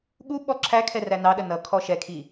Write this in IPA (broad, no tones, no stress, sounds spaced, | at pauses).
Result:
ɠ u ɓ ɔ ǁʰ æ kʰ ɛ r æ n ɑ ɗ ə n ʌ kʰ ɔ ʃ ɛ kʰ i